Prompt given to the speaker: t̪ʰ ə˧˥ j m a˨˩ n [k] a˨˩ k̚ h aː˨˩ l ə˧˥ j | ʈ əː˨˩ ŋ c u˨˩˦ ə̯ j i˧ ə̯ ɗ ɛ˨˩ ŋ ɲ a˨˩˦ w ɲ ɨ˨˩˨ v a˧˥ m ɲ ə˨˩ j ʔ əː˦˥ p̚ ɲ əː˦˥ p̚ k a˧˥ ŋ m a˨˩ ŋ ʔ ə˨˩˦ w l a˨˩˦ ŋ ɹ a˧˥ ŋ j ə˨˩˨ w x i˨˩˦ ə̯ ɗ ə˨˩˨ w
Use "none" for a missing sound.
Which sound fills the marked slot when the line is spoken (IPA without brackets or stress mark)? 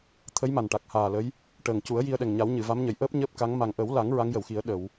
ʈ